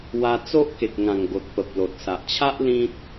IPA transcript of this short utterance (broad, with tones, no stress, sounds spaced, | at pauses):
w a˧ t͡s o˦ ʔ k e˨ k̚ ŋ ã˨˩ ŋ ɡ o˨ t̚ p ə˨ p̚ l o˨ t̚ s a˨ ʔ t͡ɕʰ a˦ ʔ l ĩ˦ t̚